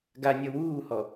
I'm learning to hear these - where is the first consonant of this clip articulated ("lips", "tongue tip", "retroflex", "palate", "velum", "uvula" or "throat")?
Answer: velum